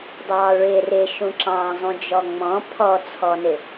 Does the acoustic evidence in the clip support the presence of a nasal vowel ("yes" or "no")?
yes